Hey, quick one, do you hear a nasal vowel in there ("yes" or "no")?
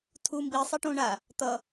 yes